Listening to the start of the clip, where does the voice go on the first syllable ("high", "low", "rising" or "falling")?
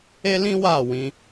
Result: high